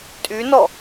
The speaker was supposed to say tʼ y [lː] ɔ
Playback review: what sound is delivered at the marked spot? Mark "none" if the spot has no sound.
n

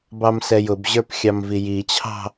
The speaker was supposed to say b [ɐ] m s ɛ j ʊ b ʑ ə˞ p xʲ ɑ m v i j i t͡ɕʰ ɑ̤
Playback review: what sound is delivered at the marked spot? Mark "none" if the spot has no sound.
ɑ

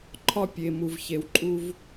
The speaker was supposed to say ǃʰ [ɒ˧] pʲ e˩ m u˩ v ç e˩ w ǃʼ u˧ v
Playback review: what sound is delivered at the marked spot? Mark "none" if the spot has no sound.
ɒ˧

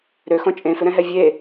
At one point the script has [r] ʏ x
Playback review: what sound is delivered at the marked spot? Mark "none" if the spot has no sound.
ɾ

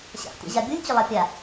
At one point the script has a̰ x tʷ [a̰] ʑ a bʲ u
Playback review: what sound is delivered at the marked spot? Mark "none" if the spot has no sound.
a̰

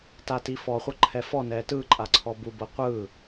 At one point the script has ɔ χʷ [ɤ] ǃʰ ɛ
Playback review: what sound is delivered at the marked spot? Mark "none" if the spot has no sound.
ɤ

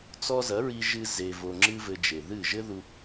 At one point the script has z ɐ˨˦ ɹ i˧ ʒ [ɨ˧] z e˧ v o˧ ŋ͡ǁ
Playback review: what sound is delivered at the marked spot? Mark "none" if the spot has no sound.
ɨ˧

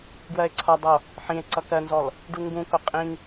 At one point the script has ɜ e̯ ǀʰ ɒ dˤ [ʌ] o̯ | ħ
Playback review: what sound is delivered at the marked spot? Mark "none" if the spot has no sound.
ʌ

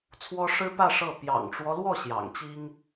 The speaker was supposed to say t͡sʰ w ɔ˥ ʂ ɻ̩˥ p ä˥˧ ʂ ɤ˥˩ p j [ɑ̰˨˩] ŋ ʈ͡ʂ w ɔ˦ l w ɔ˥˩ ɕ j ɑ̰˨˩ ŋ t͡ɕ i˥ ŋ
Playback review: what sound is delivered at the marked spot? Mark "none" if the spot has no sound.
ɑ̰˨˩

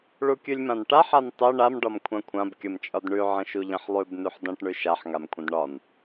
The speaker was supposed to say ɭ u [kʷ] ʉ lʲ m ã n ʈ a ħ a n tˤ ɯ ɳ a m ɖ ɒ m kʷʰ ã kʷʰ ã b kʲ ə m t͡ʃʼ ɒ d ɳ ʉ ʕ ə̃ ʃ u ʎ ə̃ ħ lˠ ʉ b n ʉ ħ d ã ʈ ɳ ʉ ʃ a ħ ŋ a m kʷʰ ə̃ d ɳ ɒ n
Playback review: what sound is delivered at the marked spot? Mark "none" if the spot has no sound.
kʲ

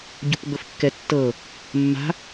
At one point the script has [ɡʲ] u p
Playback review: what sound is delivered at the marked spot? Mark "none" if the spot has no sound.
ɟ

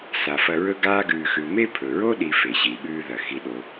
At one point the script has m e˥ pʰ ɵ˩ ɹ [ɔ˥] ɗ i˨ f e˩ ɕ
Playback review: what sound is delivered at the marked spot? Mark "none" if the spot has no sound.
o˥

